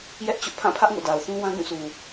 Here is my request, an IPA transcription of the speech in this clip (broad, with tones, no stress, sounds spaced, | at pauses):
j ɛ˦ ʔ t͡ɕ ʊ˦ ʔ pʰ ã˦˨ pʰ ä˦ ʔ ŋ o̰˦˨ d a˨ ʊ̯ θ ũ˦ w ã˦ ɡ ũ˦˨ s u˨